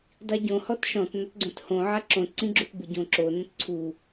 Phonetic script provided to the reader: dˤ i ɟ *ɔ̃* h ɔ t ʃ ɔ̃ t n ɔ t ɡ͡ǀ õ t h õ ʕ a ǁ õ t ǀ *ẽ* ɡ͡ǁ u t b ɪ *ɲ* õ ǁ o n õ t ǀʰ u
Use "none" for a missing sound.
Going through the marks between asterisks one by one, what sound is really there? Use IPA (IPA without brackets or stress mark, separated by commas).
õ, ĩ, ɟ